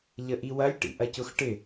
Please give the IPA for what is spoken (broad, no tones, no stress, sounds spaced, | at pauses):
ʎ ə ʔ i w ɐ lʲ ʈ ḭ ʔ ɐ c ʊ x ʈ ɪ